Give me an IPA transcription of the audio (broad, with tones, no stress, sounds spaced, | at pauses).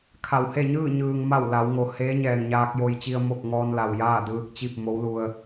kʰ a˩ w h e˥˨ ɲ ɯː˥˨ ɲ ɯː˩ ŋ m a˧˩ w l a˩˧ w ŋ o˩ h eː˧˥ ɲ ɛː˩ ŋ ɲ aː˧ k̚ j o˧ j t͡ɕ i˧ ə̯ m o˥˨ k̚ ŋ ɔː˧ n l a˩ w j aː˥˨ d ɯː˧ k̚ t͡ɕ i˥˨ p̚ m o˧˥ w l u˧ ə̯